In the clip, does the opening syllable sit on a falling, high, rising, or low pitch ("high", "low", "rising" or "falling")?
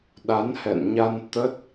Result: rising